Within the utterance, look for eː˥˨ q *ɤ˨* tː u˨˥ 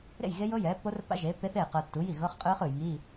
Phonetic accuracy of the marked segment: correct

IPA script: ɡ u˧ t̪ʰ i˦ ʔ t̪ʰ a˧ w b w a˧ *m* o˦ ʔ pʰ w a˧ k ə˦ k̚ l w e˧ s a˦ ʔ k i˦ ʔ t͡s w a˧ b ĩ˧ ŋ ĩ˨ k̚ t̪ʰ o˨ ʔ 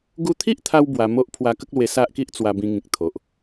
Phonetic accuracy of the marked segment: correct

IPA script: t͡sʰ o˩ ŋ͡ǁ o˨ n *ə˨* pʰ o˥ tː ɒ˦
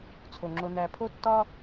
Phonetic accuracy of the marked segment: incorrect: æ˨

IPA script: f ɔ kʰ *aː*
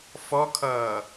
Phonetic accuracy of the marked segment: incorrect: ʌː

